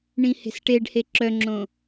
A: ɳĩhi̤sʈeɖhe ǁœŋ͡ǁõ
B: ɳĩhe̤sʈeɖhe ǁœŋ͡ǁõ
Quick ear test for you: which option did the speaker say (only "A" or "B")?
B